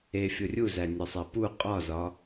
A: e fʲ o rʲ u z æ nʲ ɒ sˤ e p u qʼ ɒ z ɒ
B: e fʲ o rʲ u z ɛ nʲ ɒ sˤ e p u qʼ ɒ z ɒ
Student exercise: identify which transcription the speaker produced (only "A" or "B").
A